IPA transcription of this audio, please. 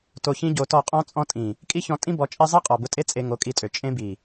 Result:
to˧çĩ˦ɟo˧tɔ˦˨ qʼɔ̃˦t͡sʼɔ̃˦ tʼĩ˨ | kʼi˦çɔ̃˧ tʼĩ˦bɔ˧t͡ʃʼe˦ zˤe˦qʼɔ˨ bʊ˧tʼe˦ t͡sʼe˧ŋo˨˦kʼi˧tʼø˨ t͡ʃʼẽ˧bi˨

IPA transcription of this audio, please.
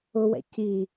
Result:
ʊwɛ̰ ci

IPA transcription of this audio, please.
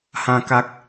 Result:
hã˦ka˦k̚

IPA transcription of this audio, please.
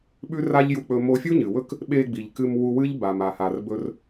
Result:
ɓʉ˥ra˥ʎju˧k͡pɵ˧ mo˧fʲu˥ɲɨ˩ wɵ˥k | ɓe˧ɡ͡bi˩ʎ kɨ˧mwu˧ wɨ˥ʎba˩m a˩ha˩rbɵ˧r

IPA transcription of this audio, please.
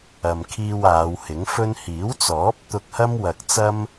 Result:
ɐ˨mkʰiː˧w aː˨˧whɪ˨˥ŋfɵ˥n hiː˨˥wt͡sɔː˨˥p̚ t̪ʊ˧k̚hɐ˥mwɐ˨k̚ t͡sɐ˥m

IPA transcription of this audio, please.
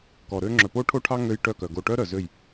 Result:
kɔ˨ɾø˦ ŋ͡ǁœ˨po˦ʈʰo˦ʈʰɑ˦ ŋø˦jʈœ˦˨kœ˨ ɡo˨ ʈœ˦ ɾœ˨zø˦˨j

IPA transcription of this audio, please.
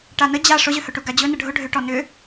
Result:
ʈanə d͡ʑa ʂʊʑʏhɵʈu ɡad͡ʑɵ nəɖʱʊ ɖʱʏʈɔ nʏ

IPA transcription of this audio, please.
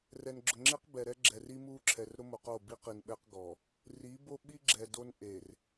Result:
rɛ˨nɡ͡ǁʊ˨ŋ͡ǁe˦q bɛ˨ɾɛ˦ɡ͡ǁɛ˨r i˦mu˦ǁʰɛ˨r ɾʊ˦mo˨qo˦˨ bi˦qi˨n ɓɛ˦qɡɔ˨ | ri˨˦bo˦ɓi˦ɡ͡ǁɛ˨ do˦nʔe˨r

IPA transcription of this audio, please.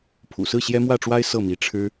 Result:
pʰṵ˨˩sɹ̩˥˩ ɕjɛ˥mwä˥˩ʈ͡ʂwa˥ɪ̯ sɤ˥˩mi˧˥ʈ͡ʂʰɻ̩˥

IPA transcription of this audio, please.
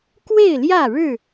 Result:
kwe˥˨ɪ̯ljä˥˨ɻɻ̩˥˨

